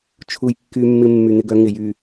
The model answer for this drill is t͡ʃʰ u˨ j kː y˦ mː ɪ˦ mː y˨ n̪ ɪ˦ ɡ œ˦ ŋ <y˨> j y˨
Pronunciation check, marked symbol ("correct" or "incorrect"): incorrect